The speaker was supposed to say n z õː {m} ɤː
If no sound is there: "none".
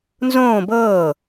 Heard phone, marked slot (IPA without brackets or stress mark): b